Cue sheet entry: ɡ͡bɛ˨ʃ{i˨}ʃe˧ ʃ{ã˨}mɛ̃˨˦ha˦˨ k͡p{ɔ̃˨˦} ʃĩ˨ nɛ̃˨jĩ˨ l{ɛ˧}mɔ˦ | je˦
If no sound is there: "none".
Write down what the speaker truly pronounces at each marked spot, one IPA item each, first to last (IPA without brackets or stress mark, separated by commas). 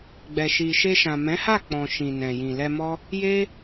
i˨, ã˨, ɔ̃˨, ɛ˧